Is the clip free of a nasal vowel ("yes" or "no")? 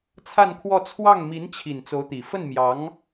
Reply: yes